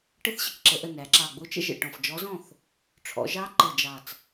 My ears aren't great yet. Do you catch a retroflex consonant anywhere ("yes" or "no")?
yes